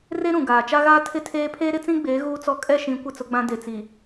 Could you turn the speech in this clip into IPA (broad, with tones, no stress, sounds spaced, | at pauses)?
r e˦ ɾ ũ˨ ɡ aː˨ t͡ʃ a˦ ɣ aː˦ tʰ ɪ˦ tʰ eː˦ pʰ eː˦ ɾ ɪ˦ t͡s ĩ˦ ɡ͡b eː˨˦ ɣ uː˦ t͡s ɔ˦ kʼ ɛ˦˨ ʃ ĩ˨˦ kʷ ɪ˦˨ t͡s ʊ˦ ɡ͡b ã˦ d e˨ t͡s i˨